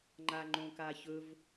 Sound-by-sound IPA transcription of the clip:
ŋ͡ǃ a ŋ͡ǃ õ k a ç ɵ v

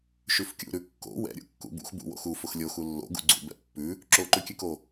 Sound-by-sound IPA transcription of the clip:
ʃ ʉ f kʲ ṵ ɾ ʉ kː o̰ w ɛ̰ ɾʲ ṵ kː ṵ b ṵ x b ṵ w o̰ x u f ʊ x lʲ o x u lː o̰ ɡ ṵ ɡ͡ǀ ṵ b ɛ̰ pː ʉ | ǁ o ǃ ʉ kʲ ʉ k o

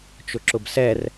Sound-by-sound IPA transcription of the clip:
t͡ʃ ʊ ǁ ʊ b s ɛ r

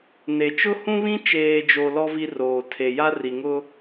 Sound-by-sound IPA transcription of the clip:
n e˨ t͡ʃ ʊ˦ h ũ˦ β ĩ˦ t͡ʃ eː˨ d͡ʒ o˨ l ɔ˦ v i˦ r oː˨ tʰ e˨ j a˦ r i˨ ŋ ʊ˦

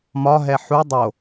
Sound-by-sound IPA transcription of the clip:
m ɒ ɦ ɛ ħ u dˤ o

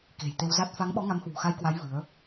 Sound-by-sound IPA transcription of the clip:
k e̤˨˩ j t̪ e˧ w z a˦˥ t̚ f a˨˦ ŋ ɓ ɔ˨˦ ŋ a˨˦ m h w ṳ˨˩ x a˧ j k w a˨˦ j v ɨ˨˦ ə̯

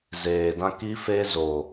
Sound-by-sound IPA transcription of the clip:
z eː˨ d ã˦ k i˦ f e˦ z o˨

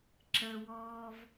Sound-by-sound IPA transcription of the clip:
ǁ ə w ɔː v

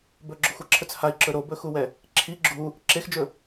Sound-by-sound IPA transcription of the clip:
b ɵ ɡ͡ǁ ɵ xʷ a ǁʰ ɵ t͡s h a i̯ ǁ ɵ ɾ o b ɵ x u w ɛ | ǁʰ i ɡ͡ǁ u | ǁ e x d͡ʒ ɵ

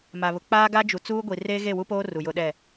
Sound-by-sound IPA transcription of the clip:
m a˨ β ʊ˨ k͡p aː˦ ɡ a˦ d͡ʒ u˨ t͡s uː˦ ɡʷ i˨ r eː˦ ɣ e˦˨ w u˦ p oː˦ r u˨ j ʊ˦ ɗ ɛ˦˨

